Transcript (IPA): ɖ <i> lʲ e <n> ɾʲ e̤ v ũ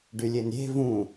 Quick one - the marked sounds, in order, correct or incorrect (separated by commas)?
incorrect, correct